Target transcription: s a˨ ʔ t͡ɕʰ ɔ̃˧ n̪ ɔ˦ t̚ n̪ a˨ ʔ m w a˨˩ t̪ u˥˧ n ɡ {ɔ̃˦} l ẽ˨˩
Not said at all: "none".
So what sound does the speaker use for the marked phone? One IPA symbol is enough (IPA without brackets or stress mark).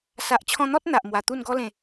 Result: ɔ˦